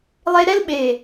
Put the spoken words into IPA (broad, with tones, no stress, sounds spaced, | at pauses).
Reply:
lˠ e˦ ɾ ɛ˦ l ɓ e˨